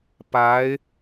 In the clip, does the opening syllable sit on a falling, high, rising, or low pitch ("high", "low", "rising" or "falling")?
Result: rising